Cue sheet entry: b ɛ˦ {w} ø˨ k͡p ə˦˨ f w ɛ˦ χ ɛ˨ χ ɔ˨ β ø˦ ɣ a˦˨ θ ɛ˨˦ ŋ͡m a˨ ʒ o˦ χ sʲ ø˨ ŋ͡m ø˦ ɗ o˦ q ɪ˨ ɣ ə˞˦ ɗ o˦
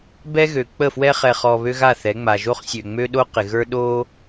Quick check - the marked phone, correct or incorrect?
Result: incorrect: ɣ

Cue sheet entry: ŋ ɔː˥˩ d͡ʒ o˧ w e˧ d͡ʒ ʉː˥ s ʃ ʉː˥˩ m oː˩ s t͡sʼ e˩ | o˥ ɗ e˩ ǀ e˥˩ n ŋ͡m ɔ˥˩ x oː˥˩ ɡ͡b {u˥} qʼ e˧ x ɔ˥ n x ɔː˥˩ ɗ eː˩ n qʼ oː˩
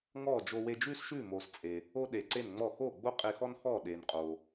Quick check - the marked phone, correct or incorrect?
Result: incorrect: o˥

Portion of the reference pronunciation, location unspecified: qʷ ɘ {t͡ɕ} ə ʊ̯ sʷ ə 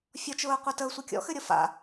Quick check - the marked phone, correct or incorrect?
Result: incorrect: t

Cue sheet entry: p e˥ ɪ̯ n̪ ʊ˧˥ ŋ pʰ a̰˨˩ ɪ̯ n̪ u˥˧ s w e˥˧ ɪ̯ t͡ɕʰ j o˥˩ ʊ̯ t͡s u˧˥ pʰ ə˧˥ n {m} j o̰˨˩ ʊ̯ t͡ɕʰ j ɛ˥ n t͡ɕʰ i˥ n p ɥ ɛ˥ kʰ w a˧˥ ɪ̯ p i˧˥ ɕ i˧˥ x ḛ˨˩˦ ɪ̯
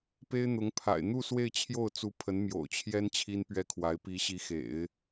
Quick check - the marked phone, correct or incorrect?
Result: correct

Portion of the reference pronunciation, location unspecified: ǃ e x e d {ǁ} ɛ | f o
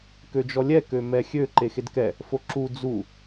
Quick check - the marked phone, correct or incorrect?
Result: incorrect: k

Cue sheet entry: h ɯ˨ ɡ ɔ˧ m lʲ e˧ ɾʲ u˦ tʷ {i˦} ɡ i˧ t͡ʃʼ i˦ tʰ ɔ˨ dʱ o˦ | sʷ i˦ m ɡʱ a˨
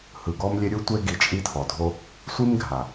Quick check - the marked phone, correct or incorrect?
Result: incorrect: e˦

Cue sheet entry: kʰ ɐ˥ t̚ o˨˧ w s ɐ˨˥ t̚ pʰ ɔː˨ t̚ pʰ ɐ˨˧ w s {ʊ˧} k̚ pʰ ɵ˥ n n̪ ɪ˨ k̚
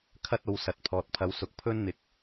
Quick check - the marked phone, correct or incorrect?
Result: incorrect: ʊ˨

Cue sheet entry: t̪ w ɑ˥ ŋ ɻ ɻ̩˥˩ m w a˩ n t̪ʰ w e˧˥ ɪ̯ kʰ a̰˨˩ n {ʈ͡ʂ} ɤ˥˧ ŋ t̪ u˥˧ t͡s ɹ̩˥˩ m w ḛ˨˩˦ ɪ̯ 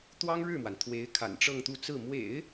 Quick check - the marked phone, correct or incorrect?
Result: correct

